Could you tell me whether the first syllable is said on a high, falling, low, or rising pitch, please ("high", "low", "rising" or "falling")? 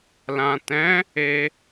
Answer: low